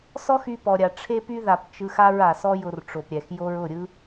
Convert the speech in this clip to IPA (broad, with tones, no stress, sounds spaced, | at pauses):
s ɔ˦ x y˧ p ɔ˨ ɾʲ a˨ ʈ͡ʂʰ e˧ p y˧ ð a˨ p t͡ʃ ɯ˧ x a˦ ɹ a˨ s ɔ˦ j ʊ˧ r ʈ͡ʂ o˨ p ɾʲ ɛ˨ x j o˧ ɹ ʊ˦˨ ɾʲ ɯ˦